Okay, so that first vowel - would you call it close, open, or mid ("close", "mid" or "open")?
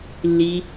close